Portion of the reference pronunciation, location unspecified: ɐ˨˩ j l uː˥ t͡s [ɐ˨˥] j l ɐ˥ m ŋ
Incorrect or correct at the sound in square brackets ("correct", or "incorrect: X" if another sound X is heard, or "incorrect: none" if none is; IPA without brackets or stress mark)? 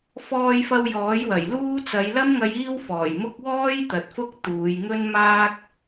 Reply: incorrect: ɐ˨˧